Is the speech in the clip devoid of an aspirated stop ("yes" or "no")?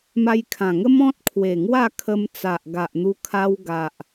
no